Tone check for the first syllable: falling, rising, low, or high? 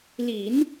low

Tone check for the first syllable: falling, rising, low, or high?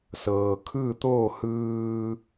low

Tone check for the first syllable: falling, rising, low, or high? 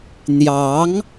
rising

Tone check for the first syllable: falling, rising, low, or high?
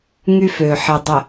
high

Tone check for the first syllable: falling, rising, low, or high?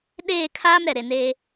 falling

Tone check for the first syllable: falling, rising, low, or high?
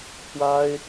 high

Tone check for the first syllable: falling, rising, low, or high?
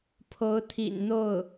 rising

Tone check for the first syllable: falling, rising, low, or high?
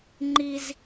high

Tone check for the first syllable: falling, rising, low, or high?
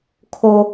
high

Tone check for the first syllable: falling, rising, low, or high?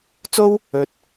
high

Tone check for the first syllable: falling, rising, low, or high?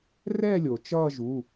falling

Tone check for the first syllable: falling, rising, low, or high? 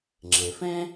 low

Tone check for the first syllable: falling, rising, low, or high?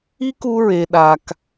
high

